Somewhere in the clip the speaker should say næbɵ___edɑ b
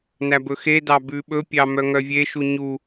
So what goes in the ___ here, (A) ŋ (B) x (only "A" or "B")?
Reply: B